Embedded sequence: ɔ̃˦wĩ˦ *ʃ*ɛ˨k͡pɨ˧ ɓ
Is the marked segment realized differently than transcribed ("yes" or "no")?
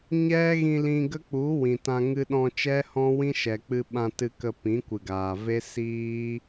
no